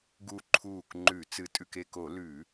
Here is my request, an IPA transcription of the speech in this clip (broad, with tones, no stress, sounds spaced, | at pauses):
ɡ u˧˩ ǃʰ uː˧˩ k ŋ͡ǃ ʉ˧˩˧ t͡s ɨ˧˩ tʼ ʉ˧˩ k e˧˩ k o˧˩˧ l ʉ˧˩˧